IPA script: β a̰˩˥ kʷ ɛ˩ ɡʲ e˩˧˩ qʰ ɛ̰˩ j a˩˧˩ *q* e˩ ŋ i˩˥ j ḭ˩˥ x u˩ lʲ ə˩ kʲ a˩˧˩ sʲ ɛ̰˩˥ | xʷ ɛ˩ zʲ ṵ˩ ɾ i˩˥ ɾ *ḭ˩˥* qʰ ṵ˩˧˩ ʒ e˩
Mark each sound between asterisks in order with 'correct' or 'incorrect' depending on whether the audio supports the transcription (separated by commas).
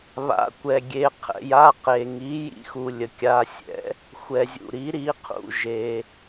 correct, incorrect